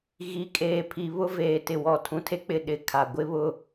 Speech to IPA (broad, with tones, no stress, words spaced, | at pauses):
ɣi˨kʼeː˨ pʰi˨βʊ˦ veː˨tɪ˨wɔ˨ tʰũ˨tʰe˦k͡pɪ˨ ɗɪ˨kʰa˨ɡʷɪ˦βʊ˦˨